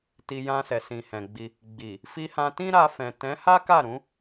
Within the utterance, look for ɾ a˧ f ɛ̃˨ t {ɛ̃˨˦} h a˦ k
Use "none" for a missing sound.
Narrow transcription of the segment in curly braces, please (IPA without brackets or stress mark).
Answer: ɛ̃˨˦